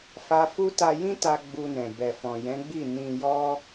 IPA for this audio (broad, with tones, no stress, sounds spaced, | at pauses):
f a˧ f u˦ t a˧ j ĩ˦ t a˧ ɡ͡b u˧ n ɛ̃˨ b ɛ˨ f ɔ̃˨ j ɛ̃˨˦ ɡ͡b i˦˨ n ĩ˧ j ɔ˦